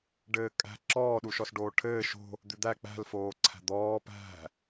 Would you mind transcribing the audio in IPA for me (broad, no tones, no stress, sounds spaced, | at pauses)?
ɖ ɘː kʼ æ̤ ǁ ɔː ɗ u ʃ ɔ s ɖ oː ʈʰ ɘː ʃ o̤ | d̪ ʉ d̪ æ k͡p æ̤ l f oː ǀʰ æ̤ d̪ ɔː p æ̤